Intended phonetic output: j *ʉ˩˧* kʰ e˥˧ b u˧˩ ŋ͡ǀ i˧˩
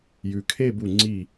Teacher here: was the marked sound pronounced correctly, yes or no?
yes